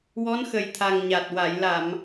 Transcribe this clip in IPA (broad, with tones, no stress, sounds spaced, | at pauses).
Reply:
w ɔ˧˥ n x ə˨˩ j t̪ʰ a˨˩ ŋ ɲ a˨˩ t̚ w a˨˩˨ j l a˨˩˨ m